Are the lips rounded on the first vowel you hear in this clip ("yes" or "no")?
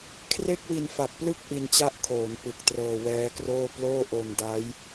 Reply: no